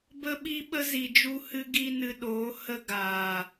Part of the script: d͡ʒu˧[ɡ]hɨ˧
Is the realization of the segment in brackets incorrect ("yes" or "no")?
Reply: yes